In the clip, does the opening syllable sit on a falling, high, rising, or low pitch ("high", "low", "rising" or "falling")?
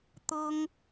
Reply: high